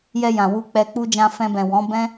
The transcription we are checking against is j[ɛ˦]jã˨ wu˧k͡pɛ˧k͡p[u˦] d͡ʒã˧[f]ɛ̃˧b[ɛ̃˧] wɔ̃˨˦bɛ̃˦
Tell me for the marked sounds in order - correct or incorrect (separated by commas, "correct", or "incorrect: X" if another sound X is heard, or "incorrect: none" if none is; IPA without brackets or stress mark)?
incorrect: ɛ˧, correct, correct, incorrect: ɛ̃˨